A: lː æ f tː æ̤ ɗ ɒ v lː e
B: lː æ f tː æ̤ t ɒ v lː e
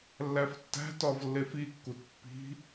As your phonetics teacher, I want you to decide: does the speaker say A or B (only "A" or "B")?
B